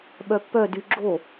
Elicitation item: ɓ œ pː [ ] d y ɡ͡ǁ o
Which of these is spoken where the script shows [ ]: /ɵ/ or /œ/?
œ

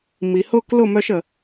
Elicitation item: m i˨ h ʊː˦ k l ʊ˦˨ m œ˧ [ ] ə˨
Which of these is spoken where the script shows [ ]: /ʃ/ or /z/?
ʃ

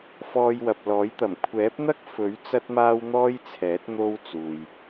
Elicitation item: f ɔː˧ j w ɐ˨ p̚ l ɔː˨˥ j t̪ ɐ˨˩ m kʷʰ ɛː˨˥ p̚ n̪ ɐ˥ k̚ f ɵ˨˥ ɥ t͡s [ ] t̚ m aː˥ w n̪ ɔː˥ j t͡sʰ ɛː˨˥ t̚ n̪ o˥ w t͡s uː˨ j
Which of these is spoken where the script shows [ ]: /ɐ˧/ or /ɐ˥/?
ɐ˥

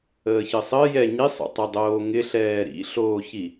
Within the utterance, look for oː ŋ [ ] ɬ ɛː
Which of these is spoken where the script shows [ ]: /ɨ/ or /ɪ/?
ɪ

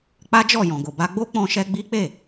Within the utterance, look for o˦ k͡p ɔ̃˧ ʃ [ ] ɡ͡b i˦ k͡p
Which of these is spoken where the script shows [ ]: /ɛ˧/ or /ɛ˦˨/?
ɛ˧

